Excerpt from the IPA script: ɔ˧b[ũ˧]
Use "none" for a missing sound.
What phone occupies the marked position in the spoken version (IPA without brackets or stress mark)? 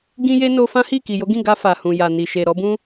ũ˦